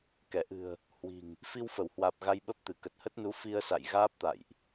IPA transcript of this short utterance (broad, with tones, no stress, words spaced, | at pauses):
kɛ˧˩ʔɨ̤˨˩ə̯ | hwi̤˨˩ŋ | fi˧wfə˧˩whwaː˨˩p̚ ɣa˧jɓə˦˥p̚t̪ɨ˧˩ kə˨˩t̚hə˦˥t̚nu˨˦ fi˧ə̯ sa̰˧˨jɣaː˦˥p̚t̪a̰˧˨jʔ